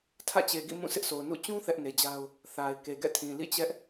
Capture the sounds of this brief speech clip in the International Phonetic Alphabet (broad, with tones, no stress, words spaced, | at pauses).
tʰä̰˦˨t͡ɕe˨ɡḭ˦˨ mũ˦˨sɪ˦ʔso˨ʊ̯ nṵ˦˨ t͡ɕũ˦ θɛ˦ʔne˨d͡ʑa˦ʊ̯ | θa˨ɪ̯ ke˨ɡɛ̰˦˨tʰĩ˨ lḭ˦˨t͡ɕɛ˦ʔ